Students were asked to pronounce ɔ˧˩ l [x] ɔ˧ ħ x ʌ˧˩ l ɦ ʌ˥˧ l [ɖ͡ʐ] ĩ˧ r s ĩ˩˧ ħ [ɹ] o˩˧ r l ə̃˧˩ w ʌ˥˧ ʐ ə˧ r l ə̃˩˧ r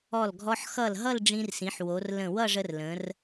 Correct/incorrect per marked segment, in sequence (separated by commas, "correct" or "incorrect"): incorrect, correct, incorrect